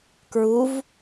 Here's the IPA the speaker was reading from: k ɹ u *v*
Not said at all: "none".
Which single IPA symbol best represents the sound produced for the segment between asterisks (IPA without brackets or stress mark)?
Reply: v